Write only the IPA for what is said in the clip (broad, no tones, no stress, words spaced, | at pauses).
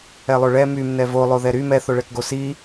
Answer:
ɛlˠoɭɛ mym nɛvolˠoðɛ ɾy mɛθoɭɛkɡo si